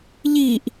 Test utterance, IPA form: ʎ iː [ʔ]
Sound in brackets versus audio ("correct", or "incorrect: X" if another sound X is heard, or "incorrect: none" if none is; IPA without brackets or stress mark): correct